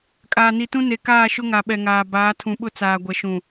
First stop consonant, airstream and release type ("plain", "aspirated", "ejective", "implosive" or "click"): ejective